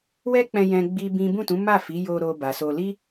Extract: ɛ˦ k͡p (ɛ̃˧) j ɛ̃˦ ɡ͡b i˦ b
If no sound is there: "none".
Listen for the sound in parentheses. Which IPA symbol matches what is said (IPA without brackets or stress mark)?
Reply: ɛ̃˧